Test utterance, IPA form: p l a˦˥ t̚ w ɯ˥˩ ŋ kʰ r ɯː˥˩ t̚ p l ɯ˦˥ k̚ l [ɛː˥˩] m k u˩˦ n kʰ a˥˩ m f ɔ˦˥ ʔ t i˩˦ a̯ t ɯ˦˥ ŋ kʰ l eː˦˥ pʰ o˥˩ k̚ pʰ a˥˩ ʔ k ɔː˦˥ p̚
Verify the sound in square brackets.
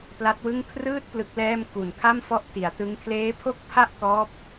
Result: correct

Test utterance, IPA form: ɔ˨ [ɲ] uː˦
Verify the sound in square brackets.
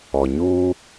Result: correct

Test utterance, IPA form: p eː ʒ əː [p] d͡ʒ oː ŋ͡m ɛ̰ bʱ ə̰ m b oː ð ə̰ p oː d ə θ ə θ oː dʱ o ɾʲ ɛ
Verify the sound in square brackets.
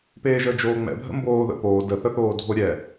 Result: incorrect: none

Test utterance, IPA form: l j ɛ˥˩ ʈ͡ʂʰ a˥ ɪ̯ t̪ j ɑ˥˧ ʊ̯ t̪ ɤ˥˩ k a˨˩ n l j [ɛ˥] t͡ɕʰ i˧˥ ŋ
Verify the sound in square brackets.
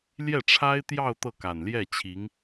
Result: incorrect: ɛ˥˩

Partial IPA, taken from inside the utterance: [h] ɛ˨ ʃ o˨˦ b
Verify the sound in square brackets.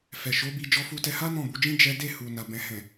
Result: incorrect: f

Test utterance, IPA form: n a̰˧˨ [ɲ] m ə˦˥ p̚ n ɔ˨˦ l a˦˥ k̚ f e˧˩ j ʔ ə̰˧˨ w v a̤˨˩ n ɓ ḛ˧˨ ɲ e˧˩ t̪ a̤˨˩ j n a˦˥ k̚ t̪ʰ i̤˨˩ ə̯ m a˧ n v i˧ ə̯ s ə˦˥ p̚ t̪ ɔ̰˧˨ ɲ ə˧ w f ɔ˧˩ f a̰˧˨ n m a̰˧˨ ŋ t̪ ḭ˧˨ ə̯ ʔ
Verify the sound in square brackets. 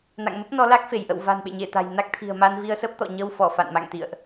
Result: incorrect: ŋ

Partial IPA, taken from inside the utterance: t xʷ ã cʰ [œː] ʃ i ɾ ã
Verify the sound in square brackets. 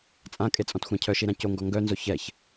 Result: incorrect: œ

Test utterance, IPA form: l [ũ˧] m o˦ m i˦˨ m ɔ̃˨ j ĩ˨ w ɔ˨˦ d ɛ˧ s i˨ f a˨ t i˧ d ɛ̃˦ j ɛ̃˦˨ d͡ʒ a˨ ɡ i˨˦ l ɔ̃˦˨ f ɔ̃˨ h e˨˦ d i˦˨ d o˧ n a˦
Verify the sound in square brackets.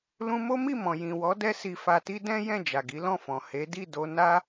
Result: correct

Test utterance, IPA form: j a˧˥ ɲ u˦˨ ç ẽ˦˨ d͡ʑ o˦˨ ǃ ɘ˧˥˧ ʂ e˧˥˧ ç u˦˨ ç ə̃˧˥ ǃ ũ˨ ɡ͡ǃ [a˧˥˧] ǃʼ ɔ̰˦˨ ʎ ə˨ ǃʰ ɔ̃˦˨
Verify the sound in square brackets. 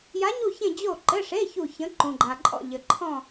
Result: incorrect: a˨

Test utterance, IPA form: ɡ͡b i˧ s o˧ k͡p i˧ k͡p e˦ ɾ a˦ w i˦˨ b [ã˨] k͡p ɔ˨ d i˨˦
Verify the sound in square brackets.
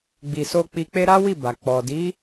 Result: incorrect: a˨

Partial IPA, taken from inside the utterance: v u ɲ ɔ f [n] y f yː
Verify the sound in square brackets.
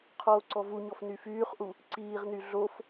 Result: correct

